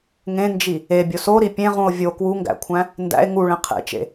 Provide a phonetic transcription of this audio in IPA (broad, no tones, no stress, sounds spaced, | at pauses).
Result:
ŋ ẽ n d͡ʒ i | e bʲ o s o ɾ i pʲ ẽ ʁ ũ o̯ vʲ o k w u ŋ ɡ æ̰ kʷʰ æ̃ | n d æ̰ e̯ ŋ u ɭ ẽ qʰ ḛ t͡ʃ ḛ